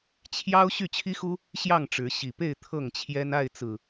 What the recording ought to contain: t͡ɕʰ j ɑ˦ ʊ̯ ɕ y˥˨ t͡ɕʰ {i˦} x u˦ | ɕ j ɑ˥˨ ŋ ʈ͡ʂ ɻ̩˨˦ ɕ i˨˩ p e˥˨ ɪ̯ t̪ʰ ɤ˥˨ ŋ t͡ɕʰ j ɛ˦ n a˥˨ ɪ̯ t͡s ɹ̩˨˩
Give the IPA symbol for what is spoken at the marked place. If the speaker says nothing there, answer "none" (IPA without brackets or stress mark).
i˦